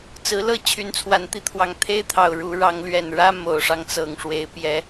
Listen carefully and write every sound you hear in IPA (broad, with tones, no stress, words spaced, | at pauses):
t͡sɹ̩˨˦lɤ˥˨ t͡ɕʰy˨˦nt͡sʰwa˨˩nt̪i˥˨t̪ʰwɑ˨˩ŋ t̪ʰe˦ɪ̯t̪ʰɑ˨˩ʊ̯ ɻu˨˦ ɻɑ˨˦ŋlɥɛ˨˩nɻä˦ mo˨˩ʊ̯ʂɑ˦ŋt͡sɤ˨˩ŋ ʂwe˨˦ɪ̯pjɛ˨˦